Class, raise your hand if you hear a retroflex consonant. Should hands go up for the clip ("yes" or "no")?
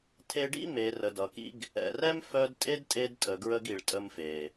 yes